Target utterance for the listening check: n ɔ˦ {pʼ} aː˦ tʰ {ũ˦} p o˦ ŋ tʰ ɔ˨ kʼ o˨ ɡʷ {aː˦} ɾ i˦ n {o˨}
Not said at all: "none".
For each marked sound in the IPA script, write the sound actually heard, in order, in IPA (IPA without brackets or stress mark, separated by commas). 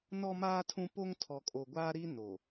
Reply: m, ũ˦, aː˦, o˨